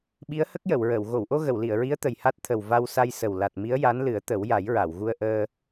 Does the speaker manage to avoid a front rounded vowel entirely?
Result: yes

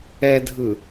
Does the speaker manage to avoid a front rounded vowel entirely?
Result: yes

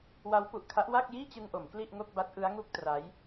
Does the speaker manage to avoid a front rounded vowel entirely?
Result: yes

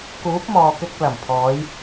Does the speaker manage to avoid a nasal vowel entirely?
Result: yes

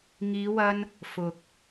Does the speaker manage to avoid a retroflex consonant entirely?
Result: yes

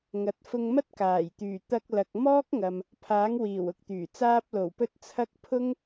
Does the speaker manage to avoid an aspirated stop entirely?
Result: no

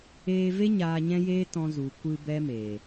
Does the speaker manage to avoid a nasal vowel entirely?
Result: no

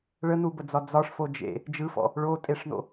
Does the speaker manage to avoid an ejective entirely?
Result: no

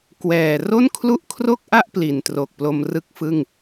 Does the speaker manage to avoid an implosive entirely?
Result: yes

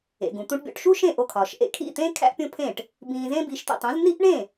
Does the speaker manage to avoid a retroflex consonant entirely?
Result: no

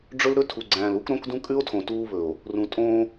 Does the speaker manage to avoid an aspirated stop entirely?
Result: no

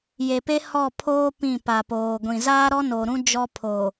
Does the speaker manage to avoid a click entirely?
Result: yes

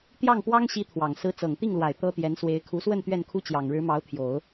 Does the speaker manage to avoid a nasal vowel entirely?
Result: yes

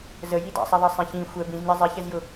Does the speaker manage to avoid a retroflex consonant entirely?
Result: yes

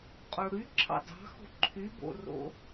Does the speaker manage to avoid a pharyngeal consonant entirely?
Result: yes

